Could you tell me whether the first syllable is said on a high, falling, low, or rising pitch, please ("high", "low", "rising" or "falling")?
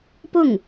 falling